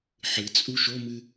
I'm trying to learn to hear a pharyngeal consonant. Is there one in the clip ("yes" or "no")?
yes